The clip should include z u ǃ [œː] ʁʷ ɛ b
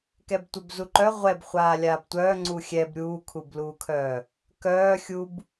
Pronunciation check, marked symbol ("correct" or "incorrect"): incorrect